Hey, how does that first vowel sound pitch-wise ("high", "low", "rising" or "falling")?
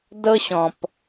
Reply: high